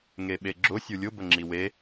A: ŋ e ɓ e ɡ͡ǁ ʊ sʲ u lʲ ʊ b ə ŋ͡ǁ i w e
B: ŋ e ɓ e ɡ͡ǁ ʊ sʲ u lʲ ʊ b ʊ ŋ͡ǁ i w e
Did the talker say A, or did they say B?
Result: A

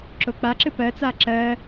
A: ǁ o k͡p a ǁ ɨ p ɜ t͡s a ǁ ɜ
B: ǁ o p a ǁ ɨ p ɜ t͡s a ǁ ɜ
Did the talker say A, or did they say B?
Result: A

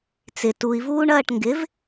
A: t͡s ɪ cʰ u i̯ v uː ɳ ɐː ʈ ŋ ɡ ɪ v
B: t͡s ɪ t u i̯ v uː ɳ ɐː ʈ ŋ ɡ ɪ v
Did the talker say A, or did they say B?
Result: B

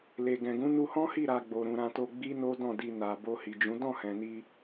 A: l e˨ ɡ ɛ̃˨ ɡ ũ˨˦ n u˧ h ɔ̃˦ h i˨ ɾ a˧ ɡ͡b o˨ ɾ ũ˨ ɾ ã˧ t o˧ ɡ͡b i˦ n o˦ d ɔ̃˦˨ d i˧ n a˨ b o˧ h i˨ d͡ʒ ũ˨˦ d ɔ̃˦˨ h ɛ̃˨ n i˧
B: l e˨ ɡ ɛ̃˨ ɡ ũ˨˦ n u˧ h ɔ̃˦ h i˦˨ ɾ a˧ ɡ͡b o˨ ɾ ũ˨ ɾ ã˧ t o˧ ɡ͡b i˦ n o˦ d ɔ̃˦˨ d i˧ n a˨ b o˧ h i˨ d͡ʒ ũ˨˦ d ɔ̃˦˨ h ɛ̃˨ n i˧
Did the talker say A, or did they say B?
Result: B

